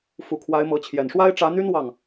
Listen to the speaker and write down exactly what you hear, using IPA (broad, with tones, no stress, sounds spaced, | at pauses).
f u˨˩ kʰ w a˧˥ ɪ̯ m ɤ˧˥ t͡ɕʰ j ɛ˨˩ n ʂ w a˥ ɪ̯ ʈ͡ʂ ä˧˥ n̪ y˥ n w ɑ˥˩ ŋ